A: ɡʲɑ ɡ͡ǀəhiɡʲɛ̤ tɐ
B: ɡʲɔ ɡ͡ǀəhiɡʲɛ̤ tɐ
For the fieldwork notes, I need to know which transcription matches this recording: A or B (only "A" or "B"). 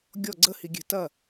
B